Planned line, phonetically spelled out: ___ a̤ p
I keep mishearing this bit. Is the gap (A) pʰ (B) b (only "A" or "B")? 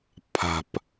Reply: A